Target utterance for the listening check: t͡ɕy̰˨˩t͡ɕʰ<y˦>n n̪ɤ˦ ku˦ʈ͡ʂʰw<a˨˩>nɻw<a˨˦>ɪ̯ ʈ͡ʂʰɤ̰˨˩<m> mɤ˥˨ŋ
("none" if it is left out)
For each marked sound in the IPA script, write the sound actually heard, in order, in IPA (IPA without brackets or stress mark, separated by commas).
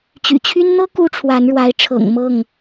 y˦, a˨˦, a˨˦, ŋ